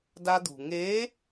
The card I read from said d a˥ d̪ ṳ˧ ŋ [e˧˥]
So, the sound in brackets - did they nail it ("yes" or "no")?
yes